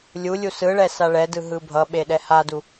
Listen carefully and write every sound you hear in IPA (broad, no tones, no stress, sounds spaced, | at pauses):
lʲ u lʲ u s ɯ ɭ ɛ s a ɭ ɛ d ɯ ɦ ɯ bʱ ʌ ɓ e ɗ ɛ h a d u